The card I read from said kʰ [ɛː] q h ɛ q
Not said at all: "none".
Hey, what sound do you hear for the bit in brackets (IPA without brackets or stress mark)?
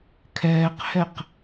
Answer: ɛː